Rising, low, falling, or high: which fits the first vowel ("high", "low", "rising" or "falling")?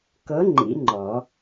rising